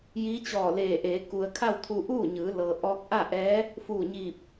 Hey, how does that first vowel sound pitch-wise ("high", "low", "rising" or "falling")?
rising